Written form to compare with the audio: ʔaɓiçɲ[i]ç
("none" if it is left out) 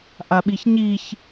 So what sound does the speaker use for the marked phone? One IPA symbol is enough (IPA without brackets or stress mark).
i